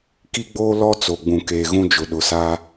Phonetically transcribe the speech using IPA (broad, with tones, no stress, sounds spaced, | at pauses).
k i˦ ɡ͡b oː˦ l ɔ˦ t͡s o˨ ɡ͡b ũ˨ k eː˨ ɣ ũ˦ d͡ʒ ʊ˨ ɗ ʊ˨ s a˦